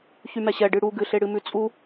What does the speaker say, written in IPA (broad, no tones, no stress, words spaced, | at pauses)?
çymɛɕɛ ɖɨɽu ɡɨɬeɽɨmʉ t͡sʼu